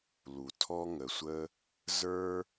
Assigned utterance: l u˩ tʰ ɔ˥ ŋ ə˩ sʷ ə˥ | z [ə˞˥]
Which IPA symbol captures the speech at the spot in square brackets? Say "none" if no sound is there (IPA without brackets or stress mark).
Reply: ə˞˥